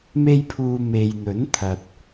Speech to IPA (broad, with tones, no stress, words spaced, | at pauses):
me˥jpʰuː˧ me˨jn̪ɵ˨˥nt̪ʰɐ˨t̚